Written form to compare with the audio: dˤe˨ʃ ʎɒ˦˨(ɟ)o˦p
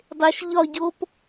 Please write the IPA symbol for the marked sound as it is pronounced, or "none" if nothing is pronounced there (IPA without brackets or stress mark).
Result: ɟ